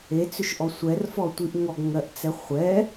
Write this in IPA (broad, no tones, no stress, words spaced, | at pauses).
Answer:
et͡sʏʃʔɔ sʷɛrfɔtʷiʔ ŋɔɡŋɜʔt͡sɛ χʷɛ